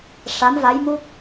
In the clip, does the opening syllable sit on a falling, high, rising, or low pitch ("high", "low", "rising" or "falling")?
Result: rising